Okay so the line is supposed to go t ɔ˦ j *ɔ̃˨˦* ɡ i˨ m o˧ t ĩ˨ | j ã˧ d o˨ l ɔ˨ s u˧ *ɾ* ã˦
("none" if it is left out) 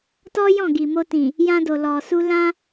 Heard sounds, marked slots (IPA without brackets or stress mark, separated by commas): ɔ̃˦˨, l